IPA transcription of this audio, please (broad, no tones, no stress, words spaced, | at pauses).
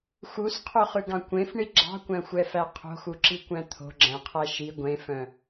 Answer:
xusqʰoχʉɡɑ̃ kʷẽfɳi ɡ͡ǁɑ̤kʷæ̃xʷɛfæ qʰo̤xuǁikʷæ̃ t̪ʰo̤ɡ͡ǁæ̃qʰæ ʃi ɡʷẽfœ̃